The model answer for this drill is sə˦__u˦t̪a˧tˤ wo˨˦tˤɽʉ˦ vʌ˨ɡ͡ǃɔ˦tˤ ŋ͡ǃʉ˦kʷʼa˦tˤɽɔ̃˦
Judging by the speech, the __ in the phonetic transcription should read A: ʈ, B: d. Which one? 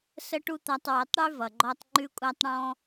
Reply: A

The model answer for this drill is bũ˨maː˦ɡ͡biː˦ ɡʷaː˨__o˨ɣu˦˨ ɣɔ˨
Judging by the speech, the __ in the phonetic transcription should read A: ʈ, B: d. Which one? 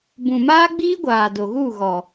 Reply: B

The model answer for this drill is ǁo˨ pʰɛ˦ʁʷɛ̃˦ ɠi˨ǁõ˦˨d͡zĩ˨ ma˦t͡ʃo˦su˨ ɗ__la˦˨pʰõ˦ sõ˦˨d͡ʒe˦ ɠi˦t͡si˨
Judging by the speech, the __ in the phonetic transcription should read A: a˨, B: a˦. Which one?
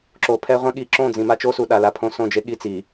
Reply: A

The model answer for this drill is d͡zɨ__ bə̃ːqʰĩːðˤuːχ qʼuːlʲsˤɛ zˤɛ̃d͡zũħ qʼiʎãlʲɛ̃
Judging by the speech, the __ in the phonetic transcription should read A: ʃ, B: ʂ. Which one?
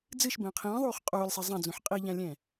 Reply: A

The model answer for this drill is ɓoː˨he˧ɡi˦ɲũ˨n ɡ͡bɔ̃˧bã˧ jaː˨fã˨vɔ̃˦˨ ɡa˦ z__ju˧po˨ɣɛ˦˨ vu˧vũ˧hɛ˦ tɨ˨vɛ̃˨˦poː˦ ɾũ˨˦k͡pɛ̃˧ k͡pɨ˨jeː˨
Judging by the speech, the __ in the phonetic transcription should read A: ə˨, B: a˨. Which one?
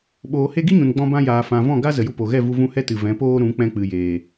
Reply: A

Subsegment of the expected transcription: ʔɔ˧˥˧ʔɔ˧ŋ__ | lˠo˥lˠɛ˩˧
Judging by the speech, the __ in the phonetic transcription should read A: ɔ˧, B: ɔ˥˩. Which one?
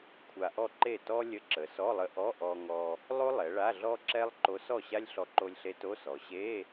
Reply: A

